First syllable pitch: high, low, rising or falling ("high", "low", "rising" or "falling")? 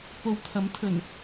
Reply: low